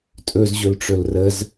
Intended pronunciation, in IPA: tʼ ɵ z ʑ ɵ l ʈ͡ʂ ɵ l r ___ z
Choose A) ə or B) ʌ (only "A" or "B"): A